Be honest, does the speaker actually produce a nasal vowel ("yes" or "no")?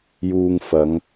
no